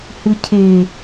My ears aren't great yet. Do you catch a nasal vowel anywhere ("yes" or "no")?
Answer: no